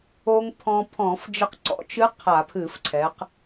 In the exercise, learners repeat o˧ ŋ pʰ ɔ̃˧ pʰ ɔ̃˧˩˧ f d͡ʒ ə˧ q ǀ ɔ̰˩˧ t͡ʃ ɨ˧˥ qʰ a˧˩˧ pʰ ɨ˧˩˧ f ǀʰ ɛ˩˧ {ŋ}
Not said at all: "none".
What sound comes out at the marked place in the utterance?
q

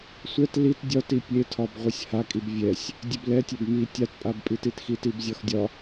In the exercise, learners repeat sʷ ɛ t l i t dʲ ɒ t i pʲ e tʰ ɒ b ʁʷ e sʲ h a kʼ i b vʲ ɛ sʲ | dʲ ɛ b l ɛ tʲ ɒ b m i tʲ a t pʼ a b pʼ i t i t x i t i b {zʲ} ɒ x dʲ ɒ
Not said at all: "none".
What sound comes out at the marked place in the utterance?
zʲ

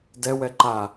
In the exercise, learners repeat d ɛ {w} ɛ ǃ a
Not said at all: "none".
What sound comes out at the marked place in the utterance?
w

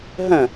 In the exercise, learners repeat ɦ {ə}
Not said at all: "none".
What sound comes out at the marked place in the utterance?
ə̃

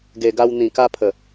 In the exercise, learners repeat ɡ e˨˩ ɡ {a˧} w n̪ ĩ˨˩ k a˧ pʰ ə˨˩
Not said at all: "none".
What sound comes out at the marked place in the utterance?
a˧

